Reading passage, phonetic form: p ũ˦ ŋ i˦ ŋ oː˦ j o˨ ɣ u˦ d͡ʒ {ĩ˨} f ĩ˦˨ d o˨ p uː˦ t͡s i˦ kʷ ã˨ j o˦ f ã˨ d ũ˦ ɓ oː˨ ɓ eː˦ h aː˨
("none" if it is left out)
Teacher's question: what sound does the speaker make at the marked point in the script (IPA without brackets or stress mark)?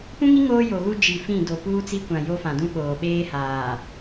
i˨